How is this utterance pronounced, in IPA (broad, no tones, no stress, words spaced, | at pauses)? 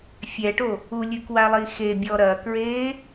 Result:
fʲɛʈo | ulʲɨkwalˠi xebʲɔ ɾɐkɹe